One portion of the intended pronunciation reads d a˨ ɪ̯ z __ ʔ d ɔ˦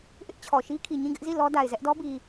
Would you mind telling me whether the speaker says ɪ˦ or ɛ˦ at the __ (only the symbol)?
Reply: ɛ˦